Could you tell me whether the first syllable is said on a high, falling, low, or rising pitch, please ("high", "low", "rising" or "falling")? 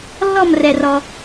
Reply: falling